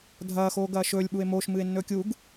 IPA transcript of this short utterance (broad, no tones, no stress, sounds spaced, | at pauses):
dʱ ɐː x oː ɡ ɐː ʃ ɵː lʲ ɓ u e̯ m oː ʃ m ɨː e̯ nː ɵː kʲ u ɡ